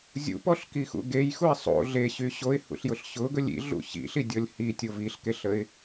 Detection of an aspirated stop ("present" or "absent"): absent